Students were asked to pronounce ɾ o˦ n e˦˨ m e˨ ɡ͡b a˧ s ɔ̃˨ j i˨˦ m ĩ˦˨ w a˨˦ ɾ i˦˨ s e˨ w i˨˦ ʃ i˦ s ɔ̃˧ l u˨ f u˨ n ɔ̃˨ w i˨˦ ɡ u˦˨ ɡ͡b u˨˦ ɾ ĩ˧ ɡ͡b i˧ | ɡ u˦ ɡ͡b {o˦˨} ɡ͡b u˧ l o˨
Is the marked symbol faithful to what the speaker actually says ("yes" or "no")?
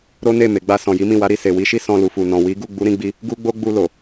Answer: no